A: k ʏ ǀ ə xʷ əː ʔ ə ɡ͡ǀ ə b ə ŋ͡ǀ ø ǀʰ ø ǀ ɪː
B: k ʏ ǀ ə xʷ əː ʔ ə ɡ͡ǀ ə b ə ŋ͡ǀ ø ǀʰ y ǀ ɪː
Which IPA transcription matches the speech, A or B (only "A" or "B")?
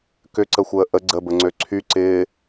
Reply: B